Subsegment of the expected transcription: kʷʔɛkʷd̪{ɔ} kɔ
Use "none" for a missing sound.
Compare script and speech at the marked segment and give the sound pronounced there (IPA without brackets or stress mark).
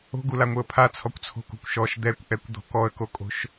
ɔ̤